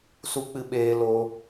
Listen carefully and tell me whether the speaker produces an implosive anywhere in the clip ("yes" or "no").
yes